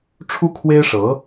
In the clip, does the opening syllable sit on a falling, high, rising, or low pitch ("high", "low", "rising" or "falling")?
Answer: high